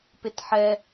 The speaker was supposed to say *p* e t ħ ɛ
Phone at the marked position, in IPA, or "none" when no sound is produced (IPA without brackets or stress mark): p